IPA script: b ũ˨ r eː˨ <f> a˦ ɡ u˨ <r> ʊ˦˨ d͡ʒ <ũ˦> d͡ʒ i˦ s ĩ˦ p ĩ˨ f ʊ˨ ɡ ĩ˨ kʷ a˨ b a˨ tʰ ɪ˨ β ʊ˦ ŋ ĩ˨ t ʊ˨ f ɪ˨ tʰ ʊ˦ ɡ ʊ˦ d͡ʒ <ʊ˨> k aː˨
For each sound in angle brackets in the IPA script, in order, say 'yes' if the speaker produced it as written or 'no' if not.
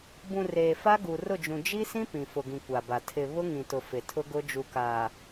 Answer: yes, yes, no, no

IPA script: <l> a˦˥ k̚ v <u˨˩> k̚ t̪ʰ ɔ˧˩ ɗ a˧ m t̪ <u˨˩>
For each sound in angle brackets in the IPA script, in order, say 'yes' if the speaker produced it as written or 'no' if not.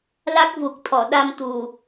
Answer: yes, yes, yes

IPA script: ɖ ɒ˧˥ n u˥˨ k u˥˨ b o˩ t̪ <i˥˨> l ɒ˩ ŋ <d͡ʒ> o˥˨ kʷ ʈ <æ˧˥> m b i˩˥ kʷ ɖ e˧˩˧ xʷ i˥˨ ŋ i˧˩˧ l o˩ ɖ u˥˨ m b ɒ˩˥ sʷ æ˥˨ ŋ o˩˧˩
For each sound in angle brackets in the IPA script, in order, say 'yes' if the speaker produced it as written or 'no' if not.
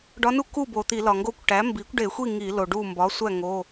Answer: no, no, no

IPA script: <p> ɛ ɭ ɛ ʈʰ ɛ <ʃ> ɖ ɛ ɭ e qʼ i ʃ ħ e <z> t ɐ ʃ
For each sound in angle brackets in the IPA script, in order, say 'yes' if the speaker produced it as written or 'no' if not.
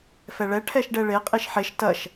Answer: no, yes, no

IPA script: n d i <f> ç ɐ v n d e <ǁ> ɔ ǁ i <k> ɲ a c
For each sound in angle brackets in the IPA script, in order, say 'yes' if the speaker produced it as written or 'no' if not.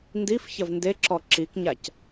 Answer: yes, yes, yes

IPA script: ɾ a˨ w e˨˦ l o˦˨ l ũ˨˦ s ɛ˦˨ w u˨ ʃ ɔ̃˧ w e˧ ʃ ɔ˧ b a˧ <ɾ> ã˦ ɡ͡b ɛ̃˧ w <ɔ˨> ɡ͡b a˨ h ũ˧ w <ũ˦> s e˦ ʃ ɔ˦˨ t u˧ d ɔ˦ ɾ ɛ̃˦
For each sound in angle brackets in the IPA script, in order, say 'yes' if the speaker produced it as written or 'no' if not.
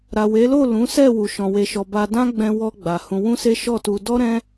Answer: no, no, yes

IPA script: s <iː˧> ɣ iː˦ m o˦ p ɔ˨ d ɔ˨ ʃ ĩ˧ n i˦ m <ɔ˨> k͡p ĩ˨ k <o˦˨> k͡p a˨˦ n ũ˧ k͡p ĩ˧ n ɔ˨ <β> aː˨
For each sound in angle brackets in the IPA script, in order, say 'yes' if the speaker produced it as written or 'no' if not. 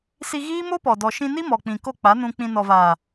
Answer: no, yes, yes, no

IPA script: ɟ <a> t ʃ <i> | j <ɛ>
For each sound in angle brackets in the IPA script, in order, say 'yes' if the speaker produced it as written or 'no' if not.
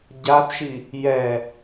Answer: yes, yes, yes

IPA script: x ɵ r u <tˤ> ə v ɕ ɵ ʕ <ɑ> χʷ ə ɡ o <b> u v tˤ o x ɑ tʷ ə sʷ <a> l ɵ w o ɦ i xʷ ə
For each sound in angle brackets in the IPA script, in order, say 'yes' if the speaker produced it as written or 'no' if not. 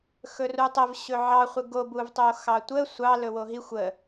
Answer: yes, yes, yes, no

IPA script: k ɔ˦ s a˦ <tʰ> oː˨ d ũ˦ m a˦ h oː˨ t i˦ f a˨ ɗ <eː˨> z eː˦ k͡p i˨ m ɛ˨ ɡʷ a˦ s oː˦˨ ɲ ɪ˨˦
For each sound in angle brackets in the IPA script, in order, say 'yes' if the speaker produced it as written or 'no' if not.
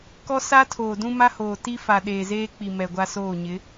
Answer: yes, yes

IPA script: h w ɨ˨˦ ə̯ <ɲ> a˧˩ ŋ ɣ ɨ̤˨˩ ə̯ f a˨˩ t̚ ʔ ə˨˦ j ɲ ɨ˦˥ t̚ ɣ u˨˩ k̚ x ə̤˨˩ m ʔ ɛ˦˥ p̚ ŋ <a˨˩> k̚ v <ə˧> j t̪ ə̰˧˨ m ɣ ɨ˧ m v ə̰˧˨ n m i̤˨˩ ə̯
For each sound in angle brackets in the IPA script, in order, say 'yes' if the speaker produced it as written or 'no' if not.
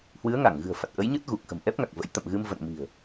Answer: no, yes, no

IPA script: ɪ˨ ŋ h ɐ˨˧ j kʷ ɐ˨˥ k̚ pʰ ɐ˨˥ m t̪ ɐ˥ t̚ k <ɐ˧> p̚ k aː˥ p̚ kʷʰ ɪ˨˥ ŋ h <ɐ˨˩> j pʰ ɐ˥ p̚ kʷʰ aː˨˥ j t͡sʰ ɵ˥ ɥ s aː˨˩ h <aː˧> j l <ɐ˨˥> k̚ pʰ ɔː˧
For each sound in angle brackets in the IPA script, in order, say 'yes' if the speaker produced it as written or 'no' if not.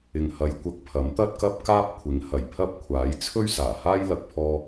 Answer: no, yes, no, no

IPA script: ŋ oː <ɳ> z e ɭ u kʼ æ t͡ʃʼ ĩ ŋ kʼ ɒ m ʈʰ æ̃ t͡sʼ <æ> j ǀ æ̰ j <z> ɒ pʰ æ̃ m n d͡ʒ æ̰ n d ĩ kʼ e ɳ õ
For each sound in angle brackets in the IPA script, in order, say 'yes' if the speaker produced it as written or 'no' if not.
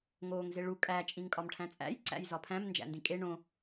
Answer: no, no, yes

